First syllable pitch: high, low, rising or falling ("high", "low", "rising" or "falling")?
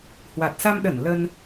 low